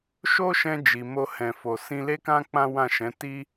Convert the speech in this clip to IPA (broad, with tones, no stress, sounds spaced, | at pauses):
ʃ o˦ ʃ ɛ̃˧ d͡ʒ i˨ m o˧ h ɛ̃˨ f o˨ s ĩ˧ l e˦ k ã˦ k͡p ã˦ w ã˦˨ ʃ ɛ̃˨˦ t i˦